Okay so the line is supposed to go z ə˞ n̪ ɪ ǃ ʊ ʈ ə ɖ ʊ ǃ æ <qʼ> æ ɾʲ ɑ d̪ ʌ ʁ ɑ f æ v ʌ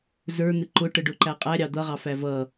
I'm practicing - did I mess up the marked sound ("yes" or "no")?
no